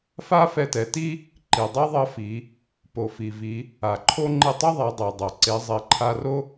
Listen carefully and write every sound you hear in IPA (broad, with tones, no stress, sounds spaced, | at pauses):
f a˥ f ɛ˧ t ɛ˩˧ t i˥ | ǃ i˩ dˤ i˥ ðˤ ʌ˧˥ f i˩˧ | p o˩ f i˩ v i˩˧ | a˩ ǃʰ o˥ ŋ͡ǃ i˧ tˤ ʌ˥ ðˤ a˩˧ dˤ ɛ˩ dˤ ʌ˩ ǀ e˩˧ zˤ i˩ ǃʰ a˧ r o˥